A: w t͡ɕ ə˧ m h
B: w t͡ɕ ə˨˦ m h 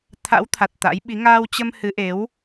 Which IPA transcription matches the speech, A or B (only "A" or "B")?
A